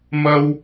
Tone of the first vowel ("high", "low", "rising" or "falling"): high